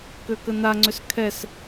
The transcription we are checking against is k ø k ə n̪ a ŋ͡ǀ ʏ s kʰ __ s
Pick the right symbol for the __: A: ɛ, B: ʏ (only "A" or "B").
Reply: A